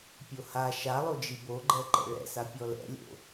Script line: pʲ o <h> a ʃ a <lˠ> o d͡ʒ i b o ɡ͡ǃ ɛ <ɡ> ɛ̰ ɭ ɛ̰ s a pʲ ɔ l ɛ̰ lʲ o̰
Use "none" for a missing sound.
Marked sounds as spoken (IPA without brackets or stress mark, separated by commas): h, lˠ, ǃ